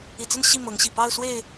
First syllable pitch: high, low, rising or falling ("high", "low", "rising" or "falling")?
low